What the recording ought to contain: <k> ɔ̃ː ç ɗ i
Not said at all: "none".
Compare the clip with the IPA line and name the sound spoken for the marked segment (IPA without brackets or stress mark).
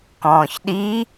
k